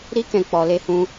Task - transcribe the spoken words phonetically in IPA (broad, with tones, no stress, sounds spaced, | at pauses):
ɾ i˦ k ɛ̃˧ k͡p ɔ˧ l e˧ h ũ˧